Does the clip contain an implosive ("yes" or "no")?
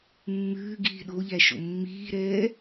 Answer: yes